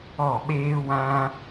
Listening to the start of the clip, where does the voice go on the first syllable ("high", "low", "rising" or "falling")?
falling